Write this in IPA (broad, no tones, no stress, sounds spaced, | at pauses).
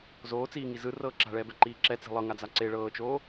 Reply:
z oː t͡s iː ŋ i z ɯ r ɤː ǁ a̤ ɭ ɛː b ɛ ǃ iː ǁ ɛ t͡s i̤ lˠ ɤ ŋ a d͡z a ǀ e ɭ ɤː t͡ʃ oː